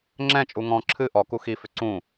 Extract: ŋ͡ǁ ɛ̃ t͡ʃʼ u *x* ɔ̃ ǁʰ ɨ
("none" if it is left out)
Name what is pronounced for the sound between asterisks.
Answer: ŋ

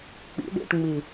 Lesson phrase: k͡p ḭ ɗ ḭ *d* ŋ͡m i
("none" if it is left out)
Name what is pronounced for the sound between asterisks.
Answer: ʈ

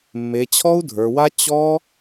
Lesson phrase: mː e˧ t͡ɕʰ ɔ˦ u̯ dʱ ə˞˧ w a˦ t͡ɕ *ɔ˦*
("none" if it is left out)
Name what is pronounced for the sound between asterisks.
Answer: ɔ˦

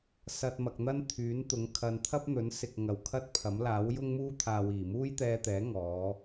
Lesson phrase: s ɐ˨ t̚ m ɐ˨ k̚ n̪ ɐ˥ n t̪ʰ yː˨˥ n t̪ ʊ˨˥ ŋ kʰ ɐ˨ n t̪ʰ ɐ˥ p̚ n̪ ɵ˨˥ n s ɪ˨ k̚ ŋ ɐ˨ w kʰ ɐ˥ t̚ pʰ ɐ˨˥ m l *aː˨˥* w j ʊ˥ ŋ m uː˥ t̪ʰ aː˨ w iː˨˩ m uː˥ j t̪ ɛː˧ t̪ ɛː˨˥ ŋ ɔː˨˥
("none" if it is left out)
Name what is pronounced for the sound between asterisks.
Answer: aː˨˥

